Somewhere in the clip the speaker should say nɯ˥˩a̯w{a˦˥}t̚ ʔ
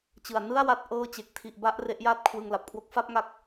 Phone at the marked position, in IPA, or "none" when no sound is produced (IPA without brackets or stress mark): a˦˥